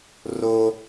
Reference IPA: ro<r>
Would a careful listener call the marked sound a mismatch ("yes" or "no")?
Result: yes